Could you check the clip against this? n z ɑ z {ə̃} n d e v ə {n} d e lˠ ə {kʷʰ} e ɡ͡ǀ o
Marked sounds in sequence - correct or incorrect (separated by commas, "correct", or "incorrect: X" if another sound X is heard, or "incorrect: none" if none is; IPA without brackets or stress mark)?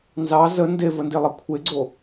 incorrect: ə, correct, correct